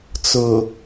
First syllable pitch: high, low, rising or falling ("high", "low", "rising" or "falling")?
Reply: low